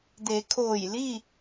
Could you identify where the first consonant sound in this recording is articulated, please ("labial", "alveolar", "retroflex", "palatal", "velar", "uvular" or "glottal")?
alveolar